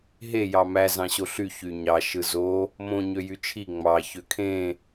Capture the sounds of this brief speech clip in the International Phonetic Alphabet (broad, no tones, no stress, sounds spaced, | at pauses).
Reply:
ɦ e j ɑ m æ z ɑ̃ ɕ o ɬ y ç y ɲ ɑ ʃ ɯ z o | m õ ɲ ø j y t͡ʃʰ i ŋ͡m ɑ ç ø kʰ ẽ